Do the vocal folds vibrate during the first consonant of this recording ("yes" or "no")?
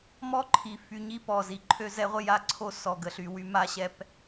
yes